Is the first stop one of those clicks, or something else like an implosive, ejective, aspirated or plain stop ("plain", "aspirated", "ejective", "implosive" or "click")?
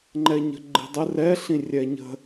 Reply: click